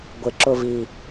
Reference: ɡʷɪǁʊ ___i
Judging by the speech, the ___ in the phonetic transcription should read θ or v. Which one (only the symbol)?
v